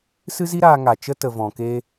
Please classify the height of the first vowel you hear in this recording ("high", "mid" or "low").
high